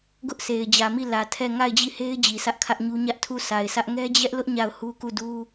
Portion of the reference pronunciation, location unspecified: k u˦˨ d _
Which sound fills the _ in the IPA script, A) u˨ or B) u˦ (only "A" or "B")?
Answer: B